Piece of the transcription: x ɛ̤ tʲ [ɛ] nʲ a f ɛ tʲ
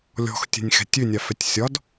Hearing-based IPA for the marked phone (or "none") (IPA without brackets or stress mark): ø